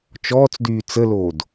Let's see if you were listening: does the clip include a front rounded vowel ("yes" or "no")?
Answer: yes